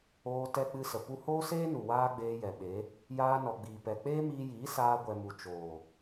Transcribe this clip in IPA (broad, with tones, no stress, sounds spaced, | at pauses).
oː˧ t ɛ˧ k͡p ɨ˧ s ə˨ p u˧ h oː˦ s eː˦ n u˨ w aː˦ ɡ͡b eː˧ j ɛ˨ ɓ e˨˦ | j aː˧ n ɔ˨ ɡ͡b iː˨ p ɛ˨ k͡p eː˦ m iː˧ j iː˨˦ s aː˧ ɡʷ ɛ˨ m u˨ t͡ʃ oː˨